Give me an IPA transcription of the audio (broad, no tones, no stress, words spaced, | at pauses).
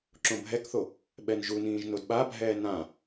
ǁõbʱɛkθo | ɓɛnʒunĩːʒ nodɓabʱɛː nã